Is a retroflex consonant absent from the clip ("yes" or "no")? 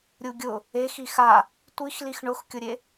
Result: no